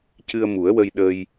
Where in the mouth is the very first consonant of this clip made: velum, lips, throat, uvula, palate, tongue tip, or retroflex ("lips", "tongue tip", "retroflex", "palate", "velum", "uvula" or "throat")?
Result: palate